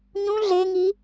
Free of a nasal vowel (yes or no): no